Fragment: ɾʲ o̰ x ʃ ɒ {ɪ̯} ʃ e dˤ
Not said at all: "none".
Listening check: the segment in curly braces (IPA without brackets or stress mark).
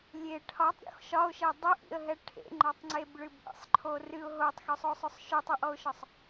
ʊ̯